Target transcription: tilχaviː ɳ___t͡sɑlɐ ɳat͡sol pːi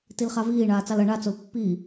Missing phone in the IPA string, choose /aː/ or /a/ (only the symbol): aː